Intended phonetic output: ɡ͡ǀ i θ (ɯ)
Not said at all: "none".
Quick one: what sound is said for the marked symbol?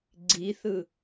ɯ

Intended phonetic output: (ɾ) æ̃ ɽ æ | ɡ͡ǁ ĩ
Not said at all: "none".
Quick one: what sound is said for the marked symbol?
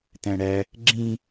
t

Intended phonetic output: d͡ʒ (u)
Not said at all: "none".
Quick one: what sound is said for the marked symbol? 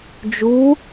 u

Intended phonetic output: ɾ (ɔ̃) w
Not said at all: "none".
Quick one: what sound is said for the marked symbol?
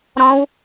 ɔ̃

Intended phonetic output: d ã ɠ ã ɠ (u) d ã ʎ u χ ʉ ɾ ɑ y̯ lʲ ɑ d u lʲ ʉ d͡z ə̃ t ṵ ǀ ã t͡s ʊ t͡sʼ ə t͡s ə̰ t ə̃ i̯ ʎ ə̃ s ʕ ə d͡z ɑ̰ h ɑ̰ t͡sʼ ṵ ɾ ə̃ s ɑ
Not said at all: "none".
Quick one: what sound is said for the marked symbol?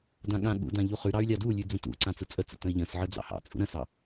ṵ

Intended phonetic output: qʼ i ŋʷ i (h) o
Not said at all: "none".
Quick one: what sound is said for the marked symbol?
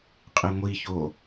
ç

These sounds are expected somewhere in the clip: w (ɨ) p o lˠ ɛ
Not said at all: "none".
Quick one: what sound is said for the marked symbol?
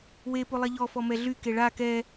e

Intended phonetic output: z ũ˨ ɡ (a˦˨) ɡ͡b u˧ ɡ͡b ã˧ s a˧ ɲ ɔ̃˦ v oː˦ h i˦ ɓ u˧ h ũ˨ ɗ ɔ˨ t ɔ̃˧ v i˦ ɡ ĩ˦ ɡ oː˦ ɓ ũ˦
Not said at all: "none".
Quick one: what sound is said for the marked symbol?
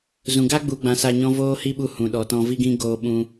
a˦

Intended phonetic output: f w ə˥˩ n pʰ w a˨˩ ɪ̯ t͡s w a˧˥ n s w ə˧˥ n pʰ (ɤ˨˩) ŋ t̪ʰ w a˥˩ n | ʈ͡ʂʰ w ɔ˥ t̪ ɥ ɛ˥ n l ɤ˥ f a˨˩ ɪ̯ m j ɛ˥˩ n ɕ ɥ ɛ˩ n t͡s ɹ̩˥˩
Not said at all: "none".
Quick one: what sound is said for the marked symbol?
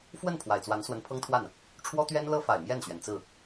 ɤ˥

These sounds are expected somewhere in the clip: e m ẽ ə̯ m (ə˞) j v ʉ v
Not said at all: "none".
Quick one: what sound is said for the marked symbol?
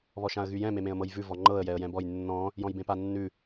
ɤ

